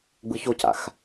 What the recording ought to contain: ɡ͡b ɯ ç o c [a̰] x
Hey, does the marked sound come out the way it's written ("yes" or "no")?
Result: yes